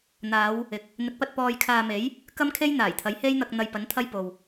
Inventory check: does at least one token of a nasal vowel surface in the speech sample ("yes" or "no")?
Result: no